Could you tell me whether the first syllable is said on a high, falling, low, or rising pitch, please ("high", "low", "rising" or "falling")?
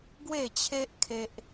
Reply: falling